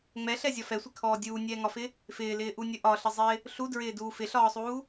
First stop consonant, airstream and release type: aspirated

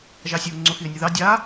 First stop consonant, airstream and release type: click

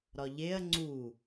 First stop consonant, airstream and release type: click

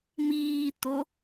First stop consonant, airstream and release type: plain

